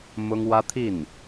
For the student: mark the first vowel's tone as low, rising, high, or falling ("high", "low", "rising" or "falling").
high